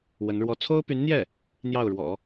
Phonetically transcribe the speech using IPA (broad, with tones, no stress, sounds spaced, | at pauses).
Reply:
w ə˧˥ n ɻ w ɔ˥ t͡sʰ o˥ ʊ̯ p y˧˥ n n̪ j ɛ˥˩ | n̪ j ɑ˥˩ ʊ̯ ɻ w ɔ̰˨˩˦